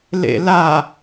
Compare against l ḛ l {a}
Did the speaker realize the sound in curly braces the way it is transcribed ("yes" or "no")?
yes